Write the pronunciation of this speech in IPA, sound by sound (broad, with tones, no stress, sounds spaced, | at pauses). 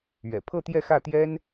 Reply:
ɥ ɛ̰˨˩ pʰ ɤ˥˧ t̪ j ɛ˥˧ x ä˥˩ t̪ j ɛ˥ n